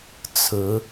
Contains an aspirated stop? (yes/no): yes